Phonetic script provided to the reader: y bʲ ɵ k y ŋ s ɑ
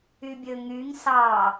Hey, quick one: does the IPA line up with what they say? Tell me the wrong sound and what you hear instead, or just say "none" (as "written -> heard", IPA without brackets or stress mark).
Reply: k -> ŋ